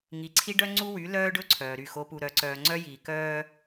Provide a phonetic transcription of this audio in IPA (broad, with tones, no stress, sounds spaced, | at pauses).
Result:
ŋ i˨ ǀʰ i˦ ɖ œ˦ ŋ͡ǀ u˦ w y˨˦ l œː˦ ɖ ɵ˦ ǀʰ œː˨ ɾ y˦˨ x o˦ p u˦ ɾ œ˦ ǀ œː˦ ŋ͡ǀ œ˦ j iː˨ k œː˦